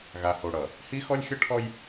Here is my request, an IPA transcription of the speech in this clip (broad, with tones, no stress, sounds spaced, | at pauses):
ɣ a˨ h o˨ ɽ ʌ˨ | h i˦ x ɔ˦ lʲ xʲ ʌ˦ ʈʰ ɔ˦ j